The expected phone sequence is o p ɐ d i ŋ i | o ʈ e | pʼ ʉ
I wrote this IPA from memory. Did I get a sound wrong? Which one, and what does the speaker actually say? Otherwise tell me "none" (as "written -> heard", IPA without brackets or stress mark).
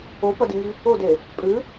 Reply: ʈ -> d